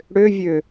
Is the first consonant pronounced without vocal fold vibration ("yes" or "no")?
no